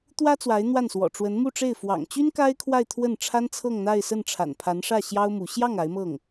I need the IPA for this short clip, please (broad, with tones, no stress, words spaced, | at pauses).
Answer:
t̪wä˥ t͡swa˧˥ɪ̯n̪wa˥˩nswɔ̰˨˩ ʈ͡ʂwə˧˥nmu˥˧ʈ͡ʂe˥˩ɪ̯ fwɑ̰˨˩ŋt͡ɕy˥n ka˥ɪ̯kʰwa˥˧ɪ̯ t̪ʰwə˥˩nʈ͡ʂʰa˥nt͡sʰɤ˥˧ŋn̪a˥˧ɪ̯ sə˥˩nʈ͡ʂʰa̰˨˩npʰa˧˥nʂä˥˩ ɕjɑ˥ʊ̯ mu˧˥ ɕjɑ˥˩ŋ a˧˥ɪ̯mɤ˥˩ŋ